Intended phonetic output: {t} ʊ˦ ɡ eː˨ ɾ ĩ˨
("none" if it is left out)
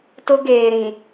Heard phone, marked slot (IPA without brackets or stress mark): t